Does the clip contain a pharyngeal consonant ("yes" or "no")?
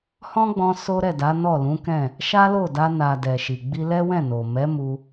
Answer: no